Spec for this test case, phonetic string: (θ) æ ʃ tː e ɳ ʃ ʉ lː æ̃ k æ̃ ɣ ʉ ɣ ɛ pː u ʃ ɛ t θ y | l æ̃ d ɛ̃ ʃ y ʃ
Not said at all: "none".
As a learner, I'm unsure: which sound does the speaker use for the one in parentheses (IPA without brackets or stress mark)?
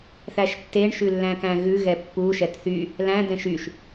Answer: θ